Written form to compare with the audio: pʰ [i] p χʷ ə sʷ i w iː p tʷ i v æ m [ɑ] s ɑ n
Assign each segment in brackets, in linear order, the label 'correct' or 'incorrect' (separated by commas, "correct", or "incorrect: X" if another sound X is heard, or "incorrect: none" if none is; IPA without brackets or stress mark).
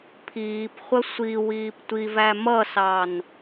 incorrect: iː, incorrect: ʌ